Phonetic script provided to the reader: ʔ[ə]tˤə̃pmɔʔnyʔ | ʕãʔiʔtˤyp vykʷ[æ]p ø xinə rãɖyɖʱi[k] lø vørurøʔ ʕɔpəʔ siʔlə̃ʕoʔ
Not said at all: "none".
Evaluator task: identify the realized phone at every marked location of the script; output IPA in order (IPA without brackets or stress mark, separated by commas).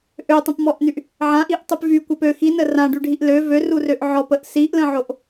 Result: ø, ɛ, ʔ